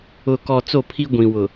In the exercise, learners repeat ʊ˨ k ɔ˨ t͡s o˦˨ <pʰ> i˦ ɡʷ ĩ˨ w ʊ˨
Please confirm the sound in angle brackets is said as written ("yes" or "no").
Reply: yes